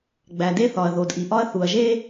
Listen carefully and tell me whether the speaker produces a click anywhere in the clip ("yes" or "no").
no